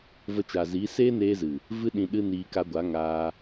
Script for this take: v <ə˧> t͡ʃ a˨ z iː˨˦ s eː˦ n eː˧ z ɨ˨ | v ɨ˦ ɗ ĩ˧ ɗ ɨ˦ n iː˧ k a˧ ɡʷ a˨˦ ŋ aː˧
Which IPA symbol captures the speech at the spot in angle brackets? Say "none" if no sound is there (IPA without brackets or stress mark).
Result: ə˧